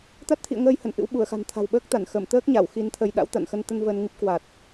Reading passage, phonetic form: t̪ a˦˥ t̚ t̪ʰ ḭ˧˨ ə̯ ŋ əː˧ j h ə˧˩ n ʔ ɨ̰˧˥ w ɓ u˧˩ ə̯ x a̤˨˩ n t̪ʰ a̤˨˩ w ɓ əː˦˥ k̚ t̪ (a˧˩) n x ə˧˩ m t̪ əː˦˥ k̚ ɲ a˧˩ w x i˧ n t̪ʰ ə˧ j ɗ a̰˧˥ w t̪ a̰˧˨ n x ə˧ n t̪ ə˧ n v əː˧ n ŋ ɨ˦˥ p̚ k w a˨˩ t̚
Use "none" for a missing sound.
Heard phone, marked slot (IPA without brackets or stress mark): a˧˩